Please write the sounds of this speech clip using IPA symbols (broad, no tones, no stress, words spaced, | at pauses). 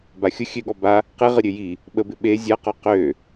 baxʲʊ xʲøɠɔ ba | qeʁəɾʲø ji | ɓəbɪ ɓe zʲaqɔ qø